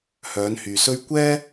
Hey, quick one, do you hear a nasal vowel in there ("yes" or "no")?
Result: no